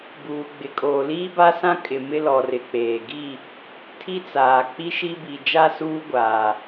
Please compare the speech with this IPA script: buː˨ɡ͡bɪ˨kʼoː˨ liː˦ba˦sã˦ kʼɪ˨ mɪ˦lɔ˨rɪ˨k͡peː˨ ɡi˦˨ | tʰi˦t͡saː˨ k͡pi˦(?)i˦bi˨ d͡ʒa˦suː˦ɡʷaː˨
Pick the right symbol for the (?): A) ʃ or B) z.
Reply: A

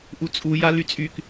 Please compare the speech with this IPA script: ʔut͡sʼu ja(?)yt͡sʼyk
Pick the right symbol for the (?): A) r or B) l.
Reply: B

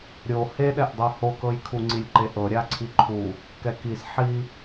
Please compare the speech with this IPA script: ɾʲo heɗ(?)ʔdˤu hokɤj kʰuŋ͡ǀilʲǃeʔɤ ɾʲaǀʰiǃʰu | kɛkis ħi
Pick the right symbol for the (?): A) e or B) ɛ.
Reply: B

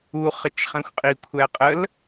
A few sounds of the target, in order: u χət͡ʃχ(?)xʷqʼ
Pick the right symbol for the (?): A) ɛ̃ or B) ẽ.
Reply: A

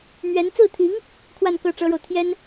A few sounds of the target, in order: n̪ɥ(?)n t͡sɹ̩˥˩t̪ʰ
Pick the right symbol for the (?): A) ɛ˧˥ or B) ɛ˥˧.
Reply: A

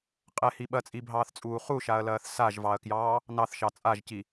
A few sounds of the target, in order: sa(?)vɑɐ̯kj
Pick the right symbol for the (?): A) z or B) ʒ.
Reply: B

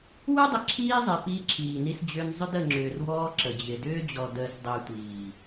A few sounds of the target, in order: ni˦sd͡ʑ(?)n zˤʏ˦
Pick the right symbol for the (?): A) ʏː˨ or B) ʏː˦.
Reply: B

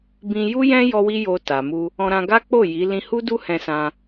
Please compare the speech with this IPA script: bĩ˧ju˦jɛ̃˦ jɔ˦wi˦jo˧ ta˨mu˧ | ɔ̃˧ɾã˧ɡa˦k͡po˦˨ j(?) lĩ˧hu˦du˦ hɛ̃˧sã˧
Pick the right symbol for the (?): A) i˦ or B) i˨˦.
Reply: B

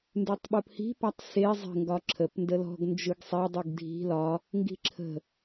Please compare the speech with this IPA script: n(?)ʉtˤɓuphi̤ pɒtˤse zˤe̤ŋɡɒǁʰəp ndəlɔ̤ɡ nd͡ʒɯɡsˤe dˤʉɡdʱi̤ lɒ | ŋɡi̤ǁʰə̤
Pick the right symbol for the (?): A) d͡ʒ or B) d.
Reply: B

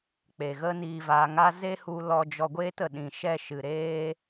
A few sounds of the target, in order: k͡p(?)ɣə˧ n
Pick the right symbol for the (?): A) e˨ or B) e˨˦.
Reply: A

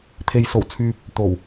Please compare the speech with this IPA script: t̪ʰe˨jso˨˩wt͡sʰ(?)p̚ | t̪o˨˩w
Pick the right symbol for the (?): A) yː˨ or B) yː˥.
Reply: A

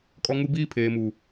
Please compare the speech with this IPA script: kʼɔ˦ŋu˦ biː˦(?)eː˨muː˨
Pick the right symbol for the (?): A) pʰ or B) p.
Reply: A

